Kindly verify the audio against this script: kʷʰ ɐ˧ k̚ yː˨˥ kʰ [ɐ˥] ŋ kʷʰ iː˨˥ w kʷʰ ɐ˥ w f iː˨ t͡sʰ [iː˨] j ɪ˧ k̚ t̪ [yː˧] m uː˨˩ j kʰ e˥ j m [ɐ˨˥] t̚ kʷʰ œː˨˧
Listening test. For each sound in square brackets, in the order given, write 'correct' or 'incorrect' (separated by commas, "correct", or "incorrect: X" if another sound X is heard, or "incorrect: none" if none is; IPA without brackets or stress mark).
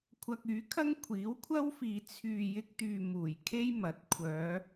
correct, incorrect: yː˨, incorrect: yː˨, correct